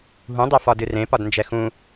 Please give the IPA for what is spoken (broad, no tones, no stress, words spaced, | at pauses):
ɦũdˤɛ fɒdɨrẽpɒd nd͡ʒɛxũ